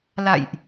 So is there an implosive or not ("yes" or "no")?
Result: no